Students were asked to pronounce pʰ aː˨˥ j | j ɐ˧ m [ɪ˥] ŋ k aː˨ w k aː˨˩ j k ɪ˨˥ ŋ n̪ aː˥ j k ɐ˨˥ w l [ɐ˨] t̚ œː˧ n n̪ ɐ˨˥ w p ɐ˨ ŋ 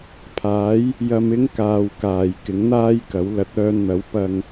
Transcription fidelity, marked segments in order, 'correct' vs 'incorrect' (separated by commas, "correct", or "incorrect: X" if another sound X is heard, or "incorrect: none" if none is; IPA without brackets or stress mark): correct, incorrect: ɐ˨˥